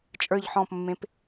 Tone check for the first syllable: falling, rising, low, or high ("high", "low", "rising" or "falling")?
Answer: falling